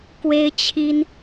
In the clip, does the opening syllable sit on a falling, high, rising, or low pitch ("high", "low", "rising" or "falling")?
high